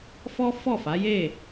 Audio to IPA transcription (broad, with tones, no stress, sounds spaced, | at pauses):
f ɔ˦ f ɔ˦˨ f a˨˦ j e˦˨